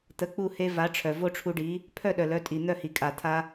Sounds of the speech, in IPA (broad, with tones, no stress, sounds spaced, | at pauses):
t̪ ə˩˥ k͡p u˥˩ h e˧ v a˩˥ ʈ͡ʂʰ œ˩ v o˥ ʈ͡ʂʰ u˧ ɖ i˩˥ | pʰ œ˥˩ ɗ œ˩ l œ˩˥ tʼ i˩ n̪ œ˥˩ h i˩ kʼ a˩ t̪ʰ a˧